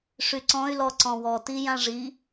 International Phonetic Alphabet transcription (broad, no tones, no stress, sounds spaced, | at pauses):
ʂ y ǀ ɔ̃ y̯ l ɔ ǀ ɔ̃ w ɔ t i j ã ʐ i